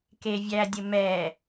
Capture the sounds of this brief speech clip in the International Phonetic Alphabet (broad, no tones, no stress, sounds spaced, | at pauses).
k e vʲ æ dʲ ɘ m ɛ